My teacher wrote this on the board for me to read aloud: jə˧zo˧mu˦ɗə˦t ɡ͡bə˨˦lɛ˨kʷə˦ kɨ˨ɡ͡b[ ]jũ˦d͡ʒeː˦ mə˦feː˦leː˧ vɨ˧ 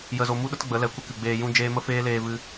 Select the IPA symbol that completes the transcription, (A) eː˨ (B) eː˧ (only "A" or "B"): B